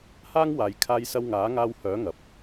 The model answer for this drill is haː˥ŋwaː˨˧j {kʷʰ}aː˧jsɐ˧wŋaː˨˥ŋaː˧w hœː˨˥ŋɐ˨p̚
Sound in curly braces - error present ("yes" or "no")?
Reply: yes